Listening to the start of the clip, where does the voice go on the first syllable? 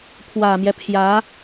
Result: low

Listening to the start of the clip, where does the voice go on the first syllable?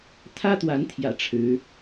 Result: high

